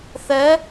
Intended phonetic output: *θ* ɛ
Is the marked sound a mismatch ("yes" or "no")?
no